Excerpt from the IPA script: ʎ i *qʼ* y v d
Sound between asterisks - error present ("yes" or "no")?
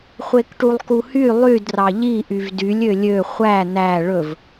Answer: yes